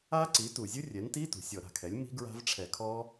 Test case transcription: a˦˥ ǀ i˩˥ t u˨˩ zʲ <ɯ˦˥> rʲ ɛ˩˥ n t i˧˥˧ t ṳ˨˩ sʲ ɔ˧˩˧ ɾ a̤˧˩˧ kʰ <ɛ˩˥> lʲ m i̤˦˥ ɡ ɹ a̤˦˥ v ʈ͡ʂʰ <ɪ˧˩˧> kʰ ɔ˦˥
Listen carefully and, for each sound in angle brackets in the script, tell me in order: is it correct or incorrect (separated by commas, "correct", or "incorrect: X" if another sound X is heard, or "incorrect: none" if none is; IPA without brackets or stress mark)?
correct, correct, incorrect: ɛ˧˩˧